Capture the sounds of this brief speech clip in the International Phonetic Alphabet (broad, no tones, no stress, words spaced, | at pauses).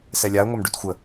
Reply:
sɛlʲaə̯ ŋʷamɖytxʷə